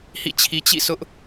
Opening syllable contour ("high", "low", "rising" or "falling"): falling